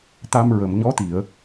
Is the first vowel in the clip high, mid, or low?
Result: low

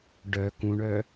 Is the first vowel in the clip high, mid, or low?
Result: mid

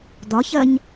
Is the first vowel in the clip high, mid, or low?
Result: low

